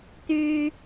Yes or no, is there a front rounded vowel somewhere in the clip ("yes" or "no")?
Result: yes